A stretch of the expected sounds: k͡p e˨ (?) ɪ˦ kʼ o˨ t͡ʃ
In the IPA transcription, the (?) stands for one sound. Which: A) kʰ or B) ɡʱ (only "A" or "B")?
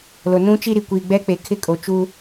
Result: A